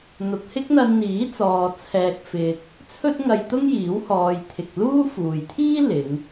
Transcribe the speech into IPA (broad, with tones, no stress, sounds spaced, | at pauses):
n̪ ʊ˨ k̚ h ɪ˥ k̚ n̪ ɐ˧ n n̪ iː˨˥ t͡s ɔː˨ t͡sʰ ɛː˨ k̚ f ɪ˨ k̚ | t͡sʰ ɵ˥ t̚ ŋ ɐ˧ j t̪ ʊ˥ ŋ j iː˨˥ w h ɔː˨ j t̪ʰ ɪ˨ k̚ l uː˥ f uː˨ j t̪ʰ iː˥ l ɪ˨˧ ŋ